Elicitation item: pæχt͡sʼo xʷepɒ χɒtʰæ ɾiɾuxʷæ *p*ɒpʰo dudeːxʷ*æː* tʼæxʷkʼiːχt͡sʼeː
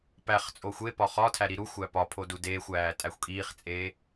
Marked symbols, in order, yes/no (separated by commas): yes, yes